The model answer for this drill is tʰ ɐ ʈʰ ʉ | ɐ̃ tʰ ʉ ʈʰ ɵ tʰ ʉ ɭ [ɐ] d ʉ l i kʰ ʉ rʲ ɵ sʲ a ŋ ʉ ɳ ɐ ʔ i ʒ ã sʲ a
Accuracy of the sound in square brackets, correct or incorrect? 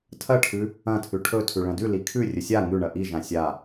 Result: incorrect